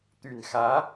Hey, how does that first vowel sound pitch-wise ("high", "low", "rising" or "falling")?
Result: low